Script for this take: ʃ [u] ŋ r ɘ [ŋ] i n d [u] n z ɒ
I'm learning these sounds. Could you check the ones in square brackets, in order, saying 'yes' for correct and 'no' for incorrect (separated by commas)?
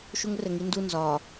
yes, yes, yes